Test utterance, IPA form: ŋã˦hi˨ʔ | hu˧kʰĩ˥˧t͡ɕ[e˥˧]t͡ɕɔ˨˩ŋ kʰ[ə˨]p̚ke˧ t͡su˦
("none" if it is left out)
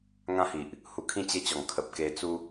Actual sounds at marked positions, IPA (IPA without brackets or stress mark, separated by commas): e˦, ə˨